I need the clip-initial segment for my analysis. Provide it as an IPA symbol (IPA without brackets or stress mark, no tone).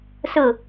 s